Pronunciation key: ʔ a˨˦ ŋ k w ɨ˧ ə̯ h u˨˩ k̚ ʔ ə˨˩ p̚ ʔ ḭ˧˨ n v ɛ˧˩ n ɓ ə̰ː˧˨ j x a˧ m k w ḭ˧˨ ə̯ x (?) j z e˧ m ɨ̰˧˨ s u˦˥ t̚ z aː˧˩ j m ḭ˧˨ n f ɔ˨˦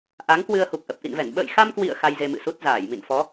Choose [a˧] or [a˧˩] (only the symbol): a˧